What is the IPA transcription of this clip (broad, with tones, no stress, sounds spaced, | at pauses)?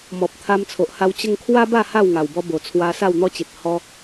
m ɔ˨ p̚ t̪ʰ a˧ m t͡sʰ o˨ ʔ h a˧ w t͡ɕ ə˦ ŋ kʰ w a˦ b a˥˧ h a˥˧ w ŋ a˨˩ w b ɔ˧ b o˨˩ t͡sʰ w a˧ s a˥˧ w n̪ ɔ˦ t͡ɕ i˨ t̚ h ɔ˦